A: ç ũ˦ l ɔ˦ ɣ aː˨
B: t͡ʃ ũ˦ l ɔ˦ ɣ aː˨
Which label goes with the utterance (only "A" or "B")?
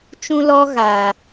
B